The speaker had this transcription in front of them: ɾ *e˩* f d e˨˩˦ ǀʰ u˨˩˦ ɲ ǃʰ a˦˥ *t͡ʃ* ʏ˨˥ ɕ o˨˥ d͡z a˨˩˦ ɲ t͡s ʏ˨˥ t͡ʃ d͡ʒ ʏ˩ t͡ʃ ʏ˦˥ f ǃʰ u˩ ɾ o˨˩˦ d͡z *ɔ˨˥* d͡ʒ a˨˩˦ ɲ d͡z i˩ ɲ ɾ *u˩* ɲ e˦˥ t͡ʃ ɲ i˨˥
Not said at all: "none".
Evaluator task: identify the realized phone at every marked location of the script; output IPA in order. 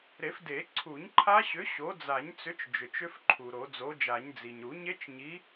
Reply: e˨˩˦, ɕ, o˨˥, u˨˩˦

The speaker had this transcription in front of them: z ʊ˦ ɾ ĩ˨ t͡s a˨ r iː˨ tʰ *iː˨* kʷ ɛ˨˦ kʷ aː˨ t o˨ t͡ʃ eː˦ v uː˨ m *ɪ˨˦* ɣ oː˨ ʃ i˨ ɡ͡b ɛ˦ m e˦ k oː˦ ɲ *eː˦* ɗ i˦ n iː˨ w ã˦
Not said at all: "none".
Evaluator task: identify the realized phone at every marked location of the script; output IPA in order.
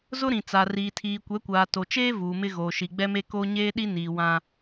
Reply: iː˨, ɪ˦, eː˦

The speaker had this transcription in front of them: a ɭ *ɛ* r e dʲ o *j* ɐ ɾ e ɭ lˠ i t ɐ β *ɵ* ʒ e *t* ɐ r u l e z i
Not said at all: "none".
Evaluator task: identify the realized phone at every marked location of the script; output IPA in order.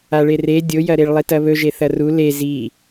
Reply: e, j, ɵ, θ

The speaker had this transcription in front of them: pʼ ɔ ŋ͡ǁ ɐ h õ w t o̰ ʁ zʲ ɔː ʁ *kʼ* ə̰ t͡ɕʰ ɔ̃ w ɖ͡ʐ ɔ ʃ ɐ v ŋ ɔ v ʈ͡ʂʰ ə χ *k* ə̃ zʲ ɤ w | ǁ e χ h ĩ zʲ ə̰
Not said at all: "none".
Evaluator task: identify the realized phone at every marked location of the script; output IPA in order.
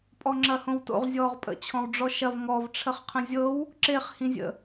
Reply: pʼ, qʰ

